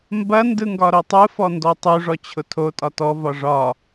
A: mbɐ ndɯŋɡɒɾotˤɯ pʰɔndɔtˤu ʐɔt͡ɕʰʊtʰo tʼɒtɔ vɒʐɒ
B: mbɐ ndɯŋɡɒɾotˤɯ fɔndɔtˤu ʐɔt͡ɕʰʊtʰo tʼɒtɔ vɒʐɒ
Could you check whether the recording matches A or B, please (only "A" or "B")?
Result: B